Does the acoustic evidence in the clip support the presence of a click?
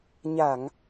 no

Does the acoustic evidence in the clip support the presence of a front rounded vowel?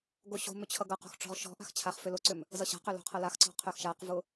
yes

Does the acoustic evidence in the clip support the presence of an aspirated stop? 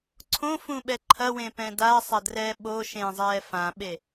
yes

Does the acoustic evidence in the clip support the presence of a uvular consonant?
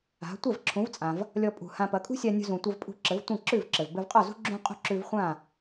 yes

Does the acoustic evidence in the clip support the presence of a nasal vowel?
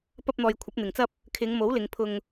no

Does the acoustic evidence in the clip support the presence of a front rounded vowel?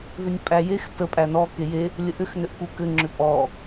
yes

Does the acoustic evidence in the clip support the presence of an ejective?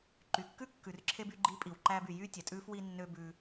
yes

